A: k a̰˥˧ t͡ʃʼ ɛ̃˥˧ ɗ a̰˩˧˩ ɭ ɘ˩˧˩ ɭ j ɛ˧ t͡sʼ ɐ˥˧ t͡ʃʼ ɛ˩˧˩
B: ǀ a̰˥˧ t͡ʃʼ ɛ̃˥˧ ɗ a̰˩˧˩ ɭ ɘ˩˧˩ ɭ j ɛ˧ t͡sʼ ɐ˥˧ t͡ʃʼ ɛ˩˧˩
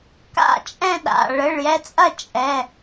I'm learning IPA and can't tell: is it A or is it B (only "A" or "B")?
A